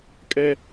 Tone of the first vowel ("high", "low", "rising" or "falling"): high